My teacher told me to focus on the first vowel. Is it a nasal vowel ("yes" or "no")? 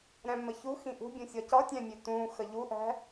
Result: yes